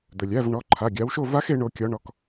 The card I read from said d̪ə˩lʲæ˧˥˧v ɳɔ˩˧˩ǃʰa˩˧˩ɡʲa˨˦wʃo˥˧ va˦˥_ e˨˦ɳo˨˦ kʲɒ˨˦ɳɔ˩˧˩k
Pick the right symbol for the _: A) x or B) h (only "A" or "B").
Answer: A